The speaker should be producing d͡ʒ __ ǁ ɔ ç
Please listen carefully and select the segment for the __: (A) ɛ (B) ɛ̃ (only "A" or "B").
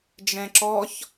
B